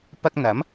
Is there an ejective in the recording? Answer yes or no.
no